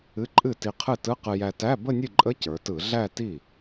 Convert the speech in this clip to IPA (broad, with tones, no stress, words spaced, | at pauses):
ɨ˧˥˧ǃʼɨ˥˩ti˧ qʰɨ˥˩tɯ˧˥˧ qɨ˧jæ˧tæ˧˥˧ bə˥˧nʲɨ˥˩ǃʼə˧˥˧ cə˞˩˧tɯ˧˩˧ ɮæ˥˧ti˥˩